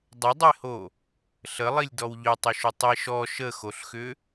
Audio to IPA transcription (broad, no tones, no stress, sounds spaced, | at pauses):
dˤ ə dˤ e h o | ɬ ə lˠ i lʲ d ɔ w ʎ ʏ tˤ ʏ ʃ ʏ tˤ i ʃ ɔ ʃ ə x o ɬ x ʏ